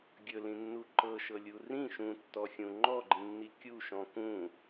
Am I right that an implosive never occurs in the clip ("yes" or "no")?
yes